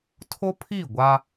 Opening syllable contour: high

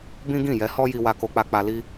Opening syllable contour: high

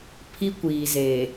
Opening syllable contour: high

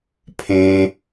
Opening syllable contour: high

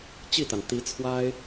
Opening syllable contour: falling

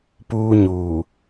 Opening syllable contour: high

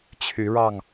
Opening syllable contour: rising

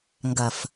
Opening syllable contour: low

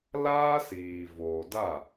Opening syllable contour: high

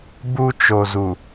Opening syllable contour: high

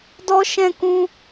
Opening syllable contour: high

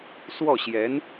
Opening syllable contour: falling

